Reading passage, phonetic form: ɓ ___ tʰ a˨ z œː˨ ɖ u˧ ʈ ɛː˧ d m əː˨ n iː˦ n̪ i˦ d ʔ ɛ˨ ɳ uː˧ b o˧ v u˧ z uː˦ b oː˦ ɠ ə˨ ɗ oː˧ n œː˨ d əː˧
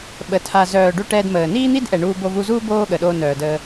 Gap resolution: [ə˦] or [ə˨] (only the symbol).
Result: ə˨